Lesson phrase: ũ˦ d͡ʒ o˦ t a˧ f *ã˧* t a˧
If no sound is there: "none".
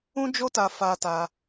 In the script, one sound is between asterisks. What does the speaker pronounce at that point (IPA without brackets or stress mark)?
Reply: a˧